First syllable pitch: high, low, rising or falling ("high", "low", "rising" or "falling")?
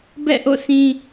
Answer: falling